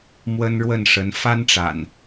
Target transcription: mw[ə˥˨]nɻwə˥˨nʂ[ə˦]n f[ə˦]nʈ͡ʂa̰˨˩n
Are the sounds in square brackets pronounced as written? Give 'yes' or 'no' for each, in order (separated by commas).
no, no, no